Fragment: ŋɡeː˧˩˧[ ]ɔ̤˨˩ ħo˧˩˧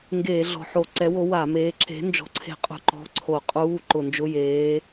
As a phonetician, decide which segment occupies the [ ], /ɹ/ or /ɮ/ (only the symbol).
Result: ɮ